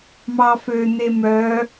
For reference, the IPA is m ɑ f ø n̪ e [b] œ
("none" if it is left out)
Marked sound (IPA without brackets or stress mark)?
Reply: m